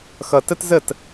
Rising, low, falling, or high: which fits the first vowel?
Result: low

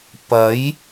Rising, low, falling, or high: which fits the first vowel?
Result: rising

